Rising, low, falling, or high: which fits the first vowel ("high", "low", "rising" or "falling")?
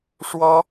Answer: high